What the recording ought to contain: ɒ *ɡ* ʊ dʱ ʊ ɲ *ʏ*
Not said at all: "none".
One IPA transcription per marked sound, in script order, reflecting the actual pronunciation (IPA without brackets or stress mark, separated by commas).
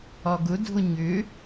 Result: ɡ, ʏ